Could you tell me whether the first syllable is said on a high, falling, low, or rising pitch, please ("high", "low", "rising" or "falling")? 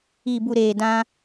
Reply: low